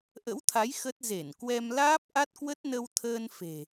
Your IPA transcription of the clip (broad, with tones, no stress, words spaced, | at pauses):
ʔə̰˧˥wt̪ʰa˨˦j xə˦˥t̚ ze˧˩nkwɛ˧mlaː˦˥p̚ ʔa˦˥t̚kwə˦˥t̚nə˧w t̪ʰəː˧nfe̤˨˩